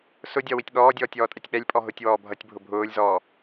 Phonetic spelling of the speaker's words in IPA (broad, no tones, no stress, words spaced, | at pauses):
sʊdʲɒ witʲɠɔːdʲɔːtʲ ɔːtʼɛtʲɓɛlʲpʼɔ ɦʊtʲ wɔːbʱʌtʲbʱʊ bʱʊːlʲzɔː